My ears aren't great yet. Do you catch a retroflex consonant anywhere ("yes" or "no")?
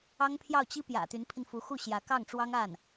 yes